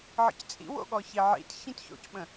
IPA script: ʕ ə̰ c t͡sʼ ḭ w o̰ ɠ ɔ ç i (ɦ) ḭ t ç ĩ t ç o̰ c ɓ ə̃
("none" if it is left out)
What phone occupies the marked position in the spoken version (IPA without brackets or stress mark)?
ʕ